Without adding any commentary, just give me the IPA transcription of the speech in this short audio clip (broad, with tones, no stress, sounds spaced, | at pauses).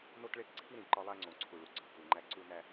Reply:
n o˦ t ɭ e˦ k ǀʰ i˦ ɾ ĩ˨ ǃ ɒ˦ lˠ æ˦ ŋ͡ǀ õ˨ ǀʰ u˨ ɭ u˨ ɡ͡ǀ ɒ˨ k u˨ ŋ͡ǃ æ˦ ǀ u˦ n æ˦